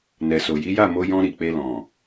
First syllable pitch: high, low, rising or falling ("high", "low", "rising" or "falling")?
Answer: low